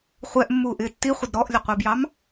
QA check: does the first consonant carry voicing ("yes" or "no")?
no